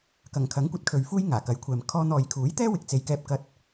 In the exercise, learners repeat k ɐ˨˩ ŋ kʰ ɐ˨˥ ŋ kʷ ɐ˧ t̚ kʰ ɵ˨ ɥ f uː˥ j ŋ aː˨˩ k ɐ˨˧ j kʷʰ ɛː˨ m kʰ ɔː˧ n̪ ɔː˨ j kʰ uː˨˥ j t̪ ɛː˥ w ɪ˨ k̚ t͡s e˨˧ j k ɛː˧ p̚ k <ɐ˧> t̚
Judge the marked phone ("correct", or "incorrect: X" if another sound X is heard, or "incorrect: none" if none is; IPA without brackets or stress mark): correct